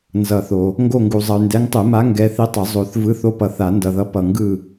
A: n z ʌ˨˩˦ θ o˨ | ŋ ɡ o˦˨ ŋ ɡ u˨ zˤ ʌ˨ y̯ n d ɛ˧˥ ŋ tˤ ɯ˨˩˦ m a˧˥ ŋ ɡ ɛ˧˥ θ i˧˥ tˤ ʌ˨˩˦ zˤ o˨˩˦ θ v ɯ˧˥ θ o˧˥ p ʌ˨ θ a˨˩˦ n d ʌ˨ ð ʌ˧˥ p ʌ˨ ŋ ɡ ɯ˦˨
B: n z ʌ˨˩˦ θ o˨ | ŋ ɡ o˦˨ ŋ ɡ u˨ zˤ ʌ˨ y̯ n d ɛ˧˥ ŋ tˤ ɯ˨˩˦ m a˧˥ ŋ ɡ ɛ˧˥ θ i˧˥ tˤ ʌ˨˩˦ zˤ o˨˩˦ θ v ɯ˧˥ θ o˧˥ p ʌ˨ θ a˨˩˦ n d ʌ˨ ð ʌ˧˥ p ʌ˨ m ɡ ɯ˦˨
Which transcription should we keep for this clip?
A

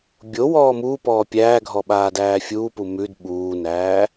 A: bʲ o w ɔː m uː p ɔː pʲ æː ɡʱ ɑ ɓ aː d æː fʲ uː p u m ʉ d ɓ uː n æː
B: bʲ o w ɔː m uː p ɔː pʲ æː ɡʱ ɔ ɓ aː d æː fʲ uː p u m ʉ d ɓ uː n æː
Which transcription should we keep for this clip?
B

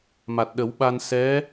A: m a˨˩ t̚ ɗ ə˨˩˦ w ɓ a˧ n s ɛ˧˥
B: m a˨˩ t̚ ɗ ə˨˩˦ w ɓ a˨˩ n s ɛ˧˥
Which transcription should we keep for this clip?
A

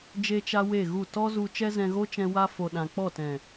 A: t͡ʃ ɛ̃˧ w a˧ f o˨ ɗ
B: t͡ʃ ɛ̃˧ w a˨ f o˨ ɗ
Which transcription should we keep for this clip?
A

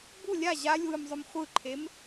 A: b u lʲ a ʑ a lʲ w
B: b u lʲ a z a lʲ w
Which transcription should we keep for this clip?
A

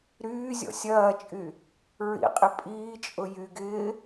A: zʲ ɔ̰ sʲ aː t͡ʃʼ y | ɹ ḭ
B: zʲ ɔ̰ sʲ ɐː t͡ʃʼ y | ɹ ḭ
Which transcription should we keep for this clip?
B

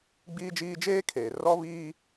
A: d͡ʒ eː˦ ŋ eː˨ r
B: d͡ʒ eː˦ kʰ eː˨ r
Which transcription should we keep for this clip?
B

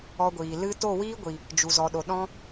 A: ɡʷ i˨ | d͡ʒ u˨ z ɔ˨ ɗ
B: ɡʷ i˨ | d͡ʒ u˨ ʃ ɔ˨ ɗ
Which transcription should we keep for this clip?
A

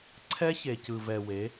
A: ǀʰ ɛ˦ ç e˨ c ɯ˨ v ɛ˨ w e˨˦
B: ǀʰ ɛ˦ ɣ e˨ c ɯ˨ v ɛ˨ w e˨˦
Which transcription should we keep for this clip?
A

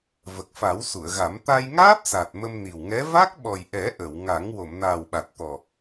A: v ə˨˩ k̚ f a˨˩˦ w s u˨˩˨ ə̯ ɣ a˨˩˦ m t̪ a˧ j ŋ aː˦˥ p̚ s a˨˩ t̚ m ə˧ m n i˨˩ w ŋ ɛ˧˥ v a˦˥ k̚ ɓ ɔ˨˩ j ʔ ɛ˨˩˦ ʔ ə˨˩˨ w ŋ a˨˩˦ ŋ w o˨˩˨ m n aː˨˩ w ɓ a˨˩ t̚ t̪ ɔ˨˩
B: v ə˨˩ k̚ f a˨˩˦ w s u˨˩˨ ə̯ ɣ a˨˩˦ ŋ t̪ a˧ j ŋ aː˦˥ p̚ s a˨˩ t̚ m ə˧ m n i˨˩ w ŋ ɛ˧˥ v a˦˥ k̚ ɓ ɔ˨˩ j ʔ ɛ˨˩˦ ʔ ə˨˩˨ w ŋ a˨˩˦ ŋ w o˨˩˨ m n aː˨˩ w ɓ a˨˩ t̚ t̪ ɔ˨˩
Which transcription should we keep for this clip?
A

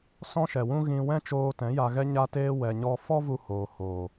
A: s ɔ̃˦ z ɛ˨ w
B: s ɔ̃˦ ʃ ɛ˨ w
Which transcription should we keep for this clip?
B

